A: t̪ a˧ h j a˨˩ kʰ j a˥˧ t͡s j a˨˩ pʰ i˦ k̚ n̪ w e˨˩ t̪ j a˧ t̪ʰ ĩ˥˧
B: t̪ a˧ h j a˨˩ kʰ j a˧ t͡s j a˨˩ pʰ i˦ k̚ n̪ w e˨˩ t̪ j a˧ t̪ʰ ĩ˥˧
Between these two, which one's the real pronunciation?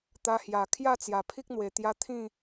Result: A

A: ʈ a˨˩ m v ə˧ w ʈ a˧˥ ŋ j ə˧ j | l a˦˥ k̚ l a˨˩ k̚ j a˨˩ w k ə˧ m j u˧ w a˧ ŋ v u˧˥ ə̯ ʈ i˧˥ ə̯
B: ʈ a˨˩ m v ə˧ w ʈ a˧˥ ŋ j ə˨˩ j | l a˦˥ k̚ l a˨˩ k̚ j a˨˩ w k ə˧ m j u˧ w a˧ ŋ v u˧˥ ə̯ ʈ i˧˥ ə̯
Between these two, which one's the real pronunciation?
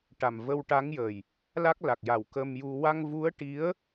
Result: B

